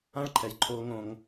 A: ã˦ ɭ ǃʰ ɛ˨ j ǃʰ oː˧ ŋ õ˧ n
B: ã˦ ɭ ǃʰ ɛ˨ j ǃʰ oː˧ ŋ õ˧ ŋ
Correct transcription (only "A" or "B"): B